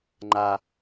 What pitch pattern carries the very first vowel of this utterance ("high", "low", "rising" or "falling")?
low